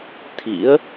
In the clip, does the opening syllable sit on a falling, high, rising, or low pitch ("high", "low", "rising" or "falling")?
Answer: rising